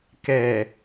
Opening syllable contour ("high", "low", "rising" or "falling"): low